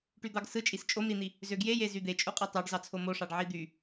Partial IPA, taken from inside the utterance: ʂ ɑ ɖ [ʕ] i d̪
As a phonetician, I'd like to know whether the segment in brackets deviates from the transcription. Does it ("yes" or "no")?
no